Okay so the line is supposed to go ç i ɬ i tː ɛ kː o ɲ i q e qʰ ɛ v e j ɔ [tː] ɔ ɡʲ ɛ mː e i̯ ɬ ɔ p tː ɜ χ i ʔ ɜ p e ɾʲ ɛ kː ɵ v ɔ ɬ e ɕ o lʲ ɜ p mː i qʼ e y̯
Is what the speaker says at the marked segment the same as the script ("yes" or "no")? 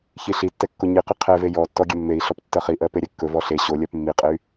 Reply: yes